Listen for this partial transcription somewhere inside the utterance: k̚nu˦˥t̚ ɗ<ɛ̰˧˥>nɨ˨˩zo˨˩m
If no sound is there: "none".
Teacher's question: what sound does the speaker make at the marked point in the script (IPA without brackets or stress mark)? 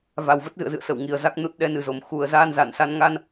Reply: ɛ˨˦